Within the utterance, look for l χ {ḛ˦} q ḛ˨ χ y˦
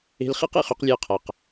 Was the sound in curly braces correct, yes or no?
yes